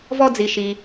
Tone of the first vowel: high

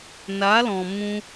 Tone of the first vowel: rising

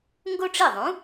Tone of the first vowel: high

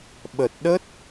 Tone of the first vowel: low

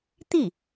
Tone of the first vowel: falling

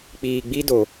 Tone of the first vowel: low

